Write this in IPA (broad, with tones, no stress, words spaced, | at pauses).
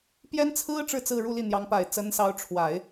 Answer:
pjɛ˥nt͡sʰɹ̩˥ ʈ͡ʂɻ̩˥˧ t͡sɹ̩˥˧ɻu˥˧li˥˩ n̪jɑ˧˥ŋpa˨˩ɪ̯t͡sə˧˥nsɑ˧˥ʊ̯ ʈ͡ʂʰwa˨˩˦ɪ̯